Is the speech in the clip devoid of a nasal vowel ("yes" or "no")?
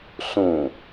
no